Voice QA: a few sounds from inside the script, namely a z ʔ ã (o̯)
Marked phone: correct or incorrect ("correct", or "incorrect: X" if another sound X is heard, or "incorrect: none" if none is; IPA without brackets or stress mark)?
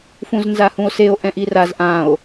correct